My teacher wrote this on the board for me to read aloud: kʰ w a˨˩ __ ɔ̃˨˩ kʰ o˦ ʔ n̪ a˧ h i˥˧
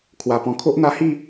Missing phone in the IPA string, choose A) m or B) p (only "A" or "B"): B